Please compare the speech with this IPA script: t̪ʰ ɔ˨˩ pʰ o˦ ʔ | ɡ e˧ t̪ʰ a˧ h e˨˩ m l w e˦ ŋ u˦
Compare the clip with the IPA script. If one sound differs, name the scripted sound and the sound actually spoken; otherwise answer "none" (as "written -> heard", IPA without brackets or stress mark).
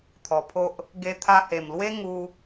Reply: none